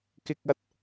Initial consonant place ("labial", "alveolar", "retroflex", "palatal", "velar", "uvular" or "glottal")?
velar